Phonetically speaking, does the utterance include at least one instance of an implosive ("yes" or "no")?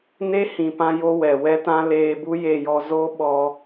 yes